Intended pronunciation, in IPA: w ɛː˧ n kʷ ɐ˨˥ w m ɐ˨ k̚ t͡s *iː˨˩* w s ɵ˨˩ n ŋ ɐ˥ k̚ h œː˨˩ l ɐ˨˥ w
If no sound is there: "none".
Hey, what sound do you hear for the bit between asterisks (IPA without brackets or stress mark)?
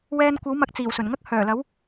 iː˨˩